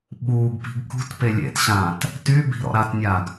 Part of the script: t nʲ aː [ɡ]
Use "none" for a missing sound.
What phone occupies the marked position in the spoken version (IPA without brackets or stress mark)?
ɡ